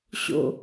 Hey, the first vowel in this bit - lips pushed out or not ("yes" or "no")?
yes